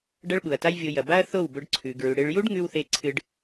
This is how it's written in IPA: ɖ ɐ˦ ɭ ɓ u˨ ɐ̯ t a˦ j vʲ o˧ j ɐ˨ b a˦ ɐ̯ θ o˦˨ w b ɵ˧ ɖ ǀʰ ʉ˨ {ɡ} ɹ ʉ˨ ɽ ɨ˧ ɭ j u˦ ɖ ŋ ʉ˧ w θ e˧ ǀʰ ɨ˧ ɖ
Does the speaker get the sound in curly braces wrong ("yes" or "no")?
no